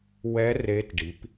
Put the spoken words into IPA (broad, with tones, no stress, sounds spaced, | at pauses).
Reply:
w ɛ˦˥ r e˦˥ t ɖ i˨˥ p